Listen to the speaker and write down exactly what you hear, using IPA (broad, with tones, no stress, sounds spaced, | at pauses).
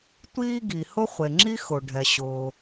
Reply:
tʷ iː˥ ɡ i˩ h ʊ˥ χʷ e˩ ŋ͡ǁ i˥ x ʊ˩ ɖʱ ɛ˩ ɕ ʊː˩